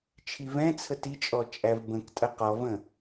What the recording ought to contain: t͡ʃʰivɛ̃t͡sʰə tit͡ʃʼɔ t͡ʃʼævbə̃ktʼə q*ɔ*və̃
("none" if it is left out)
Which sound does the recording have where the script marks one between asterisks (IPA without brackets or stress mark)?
ɔ